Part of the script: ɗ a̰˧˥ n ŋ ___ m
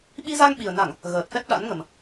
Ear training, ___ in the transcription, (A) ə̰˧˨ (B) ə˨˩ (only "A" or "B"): B